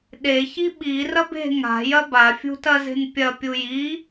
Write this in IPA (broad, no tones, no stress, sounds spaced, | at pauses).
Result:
ɗ e ç i ɓ i r ɐ b e̤ ŋ a̤ j ɐ b a fʲ ṳ t ɐ z e̤ n pʲ ɐ pʲ u j i